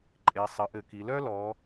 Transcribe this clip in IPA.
ǃʼ e˩˧ sˤ ɘ˩˧ ʔ ɘ˧˩˧ k i˩˧ l œ˥ l ɔ˩˧

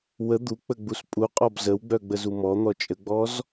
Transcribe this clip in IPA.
w ə d̪ u k͡p ə ɡ͡b u s pʼ u qʼ ɔ b z ə w ɡ͡b œ ɡ͡b ə z u m ɔ n̪ ɔ t͡ʃʼ ə ɡ͡b ɔ z

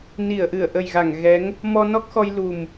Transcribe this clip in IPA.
n i˧˩ ə̯ ʔ ɨ˧˩ ə̯ ʔ ə˨˩ j ɣ a˧˩ ŋ ɣ ɛ˨˦ ŋ | m ɔ˧ n ɔ˦˥ k̚ x ɔ˧ j l u˨˩ m

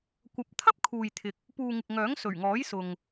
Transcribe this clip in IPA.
kʷ ɐ˨˥ p̚ t̪ʰ ɐ˥ p̚ kʰ uː˨ j t̪ʰ ɪ˨ k̚ | p uː˨ ŋ ɪ˨ k̚ ŋ œː˨˥ ŋ s ɵ˨˩ ɥ ŋ ɔː˨˥ j s ʊ˨ ŋ

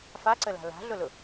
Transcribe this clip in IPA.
f a ǀ ə l a̤ l a̤ ɮ ʊ l ʊ

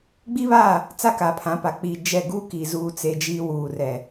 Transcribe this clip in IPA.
ɡ͡b i˦ β aː˦˨ | t͡s a˦ k a˨ pʰ ã˨˦ p a˨ k͡p i˨ d͡ʒ ɛ˦˨ ɡ uː˦ k i˨ z uː˦ t͡s e˦ d͡ʒ iː˦ w uː˨ r ɛ˨

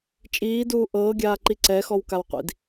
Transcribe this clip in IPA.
t͡ʃʼ iː d uː ʔ ɤː ɡʲ aː ǃ i ǀ ɛ x ɔ w k a w qʷ ḭ d

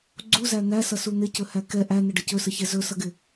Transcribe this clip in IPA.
ɡ͡ǀ u z æ n̪ æ s ʌ s u n̪ ɪ c ɵ h æ k ɛ ʔ æ n̪ ə ɖ ə c ɵ s ə ç ɛ z ɵ s ʌ ɡ ɪ

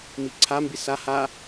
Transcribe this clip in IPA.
m i ǀʰ a m b i s a h a

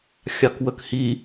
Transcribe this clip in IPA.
xʲ ɑ k w ə k h i

